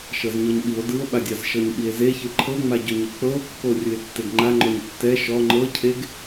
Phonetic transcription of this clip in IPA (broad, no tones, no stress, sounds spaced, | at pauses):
ʃ ɤ z ɲ ɔ ɲ ɓ i o̯ d ɯ o̯ ɓ a dʲ a z ʃ ɤ ɲ ɓ i e̯ z e ç ɯ ǃʰ ɤ ŋ͡m a ɟ o ɲ e k͡p ɤ o̯ kː o rʲ ɯ e̯ tː e ɡ ŋ͡ǃ a ŋ͡ǃ ɔ ɲ tː ɛ ʃ ɔ ŋ͡ǃ ɤ cʰ e ɡ